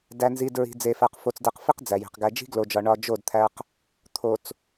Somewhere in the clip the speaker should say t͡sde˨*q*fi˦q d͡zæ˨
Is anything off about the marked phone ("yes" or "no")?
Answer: no